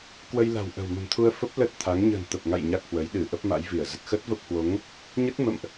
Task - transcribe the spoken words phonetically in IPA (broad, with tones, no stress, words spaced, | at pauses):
kwə˧jla̤˨˩wʔə̤˨˩w mə̤˨˩mt̪ʰu˧ə̯fə˦˥p̚ lə˦˥t̚t̪ʰa˨˦ŋ ɲə̤ː˨˩nt̪ə˨˩p̚ŋa̰˧˨j ɲa˦˥k̚hwə˨˦j ɗɨ˧˩ ʔə˦˥p̚ma̰˧˥jvi˧˩ə̯ zə˨˩t̚ xə˦˥t̚və˦˥p̚hwo˨˦ŋ | ɲə˦˥t̚ mə̰˧˨mʔ